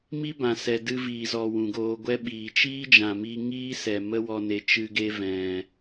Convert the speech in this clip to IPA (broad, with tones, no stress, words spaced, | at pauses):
mi˦bã˨ sɛ˨dɨ˧viː˨zɔ˨ wũ˨ɡoː˧ ɡʷɛ˦ɓiː˨ t͡ʃiː˦d͡ʒã˨mi˧ ŋiː˦sɛ˨ mə˦wɔ˧ne˧ t͡ʃɨ˦ɡe˦vɛ̃˨